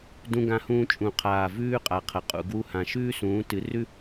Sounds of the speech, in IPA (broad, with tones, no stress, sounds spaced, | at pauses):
d ũ˦ ɡ ã˦ h ũː˦ t͡ʃʼ ũ˨˩ qʰ aː˨˩ v ʉː˦ qʼ a˩˧ qʰ ɐ˩˧ qʼ ṵ˨˩ ɡ w u˦ h ã˨˩ ʃ ʉː˦ s ũː˩˧ t ɨ˩˧ r ʉ˦